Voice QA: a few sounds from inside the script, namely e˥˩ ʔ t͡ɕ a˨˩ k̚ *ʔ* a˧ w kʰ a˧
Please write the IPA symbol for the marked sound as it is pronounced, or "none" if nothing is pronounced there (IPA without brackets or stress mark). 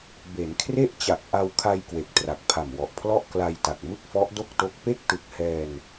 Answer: ʔ